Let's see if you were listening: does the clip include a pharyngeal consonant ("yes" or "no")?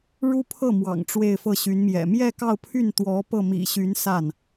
no